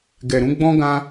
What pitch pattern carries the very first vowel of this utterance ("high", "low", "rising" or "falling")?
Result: low